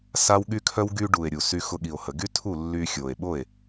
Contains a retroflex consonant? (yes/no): yes